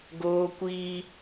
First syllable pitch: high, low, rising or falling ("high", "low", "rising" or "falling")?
high